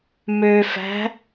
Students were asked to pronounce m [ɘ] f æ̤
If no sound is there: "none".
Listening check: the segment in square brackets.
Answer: ø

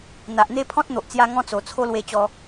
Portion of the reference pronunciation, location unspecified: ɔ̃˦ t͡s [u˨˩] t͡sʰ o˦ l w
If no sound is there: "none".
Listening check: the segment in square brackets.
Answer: o˨˩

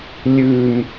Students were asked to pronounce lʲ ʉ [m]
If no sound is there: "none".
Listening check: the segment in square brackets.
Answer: m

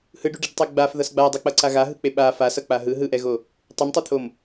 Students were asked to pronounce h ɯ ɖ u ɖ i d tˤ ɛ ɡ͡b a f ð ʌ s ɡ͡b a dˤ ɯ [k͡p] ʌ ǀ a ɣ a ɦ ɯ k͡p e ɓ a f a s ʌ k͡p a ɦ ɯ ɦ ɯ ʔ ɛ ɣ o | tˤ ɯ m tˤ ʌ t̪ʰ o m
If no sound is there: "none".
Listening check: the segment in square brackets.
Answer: k͡p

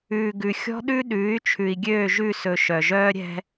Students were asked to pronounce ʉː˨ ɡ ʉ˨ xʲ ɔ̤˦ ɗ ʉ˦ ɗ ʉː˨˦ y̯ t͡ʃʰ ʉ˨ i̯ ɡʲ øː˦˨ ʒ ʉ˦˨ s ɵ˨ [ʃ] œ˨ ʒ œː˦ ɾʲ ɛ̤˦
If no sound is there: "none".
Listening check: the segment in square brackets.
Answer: ʃ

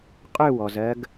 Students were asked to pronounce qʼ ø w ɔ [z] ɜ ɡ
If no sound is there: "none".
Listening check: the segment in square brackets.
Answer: z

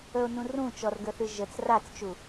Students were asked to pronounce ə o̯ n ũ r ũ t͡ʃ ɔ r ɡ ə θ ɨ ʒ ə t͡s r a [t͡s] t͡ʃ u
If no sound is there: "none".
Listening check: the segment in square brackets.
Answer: t͡s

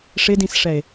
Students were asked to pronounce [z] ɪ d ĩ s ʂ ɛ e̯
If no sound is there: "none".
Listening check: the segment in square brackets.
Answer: ʂ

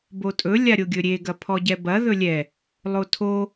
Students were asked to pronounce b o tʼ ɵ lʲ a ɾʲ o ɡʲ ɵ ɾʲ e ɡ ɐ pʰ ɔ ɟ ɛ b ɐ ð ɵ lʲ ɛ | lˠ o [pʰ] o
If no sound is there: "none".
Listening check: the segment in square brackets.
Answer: tʰ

